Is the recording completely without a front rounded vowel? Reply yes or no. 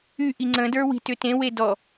no